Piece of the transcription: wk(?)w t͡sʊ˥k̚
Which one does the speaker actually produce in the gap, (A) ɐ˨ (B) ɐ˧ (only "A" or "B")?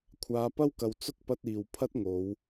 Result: A